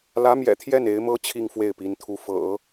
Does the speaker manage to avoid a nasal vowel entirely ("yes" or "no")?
yes